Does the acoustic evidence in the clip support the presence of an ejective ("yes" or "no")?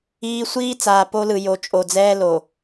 yes